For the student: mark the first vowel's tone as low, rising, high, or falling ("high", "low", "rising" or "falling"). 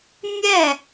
falling